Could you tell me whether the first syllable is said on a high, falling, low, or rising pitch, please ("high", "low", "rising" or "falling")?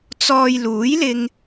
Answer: low